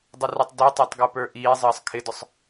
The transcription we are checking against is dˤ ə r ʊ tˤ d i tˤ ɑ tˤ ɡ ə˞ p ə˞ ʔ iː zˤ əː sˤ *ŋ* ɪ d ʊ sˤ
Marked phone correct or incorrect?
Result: incorrect